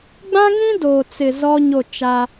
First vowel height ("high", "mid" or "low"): low